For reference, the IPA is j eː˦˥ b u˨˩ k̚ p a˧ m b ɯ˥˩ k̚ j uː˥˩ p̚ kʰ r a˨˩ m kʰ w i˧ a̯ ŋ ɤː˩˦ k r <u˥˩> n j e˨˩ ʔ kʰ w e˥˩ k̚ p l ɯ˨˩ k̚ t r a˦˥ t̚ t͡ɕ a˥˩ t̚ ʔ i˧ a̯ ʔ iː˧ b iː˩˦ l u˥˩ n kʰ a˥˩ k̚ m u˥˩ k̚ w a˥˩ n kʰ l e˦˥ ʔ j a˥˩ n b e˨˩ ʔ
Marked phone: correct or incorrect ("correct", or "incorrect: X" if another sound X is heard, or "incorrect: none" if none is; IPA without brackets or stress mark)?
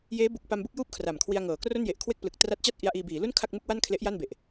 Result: incorrect: o˥˩